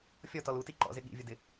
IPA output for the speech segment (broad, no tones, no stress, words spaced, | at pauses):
fʲɔtɔl uti ǃɔ̰zɪ ɠḭvʲʊdɪ